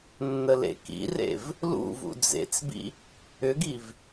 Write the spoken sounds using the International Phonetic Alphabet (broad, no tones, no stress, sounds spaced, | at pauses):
nː ə l ḛ k ḭ r ḛ v | l ṵ v ṵ d͡z ḛ t͡s b ḭ | ʏ ɡ i v